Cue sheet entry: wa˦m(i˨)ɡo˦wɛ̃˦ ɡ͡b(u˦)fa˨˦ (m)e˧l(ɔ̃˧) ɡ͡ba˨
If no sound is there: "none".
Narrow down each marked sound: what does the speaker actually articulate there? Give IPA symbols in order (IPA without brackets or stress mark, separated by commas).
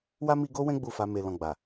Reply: i˧, u˦˨, m, ɔ̃˧